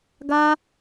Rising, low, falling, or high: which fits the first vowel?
high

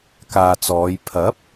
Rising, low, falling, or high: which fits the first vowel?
low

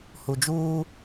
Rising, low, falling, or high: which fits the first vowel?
low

